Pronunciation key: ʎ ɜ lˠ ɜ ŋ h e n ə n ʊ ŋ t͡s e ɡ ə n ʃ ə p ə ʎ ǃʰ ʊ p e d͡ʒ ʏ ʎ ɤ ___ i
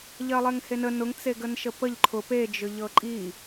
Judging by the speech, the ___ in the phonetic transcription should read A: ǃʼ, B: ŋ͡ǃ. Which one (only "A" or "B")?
A